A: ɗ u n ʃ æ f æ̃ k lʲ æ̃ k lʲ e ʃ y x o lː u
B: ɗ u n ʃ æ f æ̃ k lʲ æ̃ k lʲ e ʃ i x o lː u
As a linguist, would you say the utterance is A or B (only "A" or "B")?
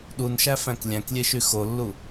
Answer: A